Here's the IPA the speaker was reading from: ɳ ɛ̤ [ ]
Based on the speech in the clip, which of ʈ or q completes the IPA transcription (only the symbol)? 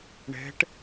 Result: ʈ